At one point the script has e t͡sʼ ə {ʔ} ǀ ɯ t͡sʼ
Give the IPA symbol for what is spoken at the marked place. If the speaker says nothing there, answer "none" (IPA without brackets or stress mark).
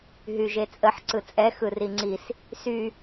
ħ